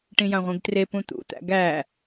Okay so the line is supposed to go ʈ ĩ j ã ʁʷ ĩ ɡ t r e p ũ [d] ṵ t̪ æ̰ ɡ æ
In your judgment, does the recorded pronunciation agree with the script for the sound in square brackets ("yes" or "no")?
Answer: no